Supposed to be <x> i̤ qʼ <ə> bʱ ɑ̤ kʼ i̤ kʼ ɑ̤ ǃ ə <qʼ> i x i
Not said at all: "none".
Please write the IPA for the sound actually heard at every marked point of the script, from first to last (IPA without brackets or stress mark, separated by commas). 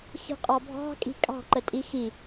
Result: x, ɑ, tʼ